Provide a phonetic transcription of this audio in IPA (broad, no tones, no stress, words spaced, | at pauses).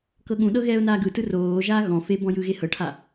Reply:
kɤɠũɗɤ ɣɛːʊ̯naːɡɯtɯ roːʒaː ɣɔ̃ fe bɔ̃jɯɣe hɤʈʰa